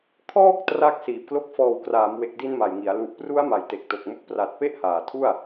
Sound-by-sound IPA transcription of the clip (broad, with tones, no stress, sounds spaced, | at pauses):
kʰ ɔː˥˩ k̚ t r aː˦˥ k̚ s iː˨˩ p̚ k l o˦˥ k̚ f ɔː˨˩ w k r aː˩˦ m w e˨˩ k̚ d i˧ n m a˨˩ j ŋ i˩˦ a̯ l u˨˩ ʔ p r u˦˥ a̯ m a˩˦ j t e˨˩ k̚ t o˨˩ k̚ m u˦˥ k̚ p r a˨˩ t̚ p e˥˩ ʔ h aː˨˩ tʰ u˥˩ a̯